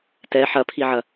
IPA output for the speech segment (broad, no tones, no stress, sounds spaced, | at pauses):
t ɛ ħ ɐ pʰ i ʕ ɐ